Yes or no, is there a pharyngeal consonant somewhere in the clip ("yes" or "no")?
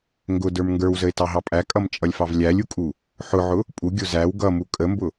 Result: yes